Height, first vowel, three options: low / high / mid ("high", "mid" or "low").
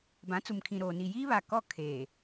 low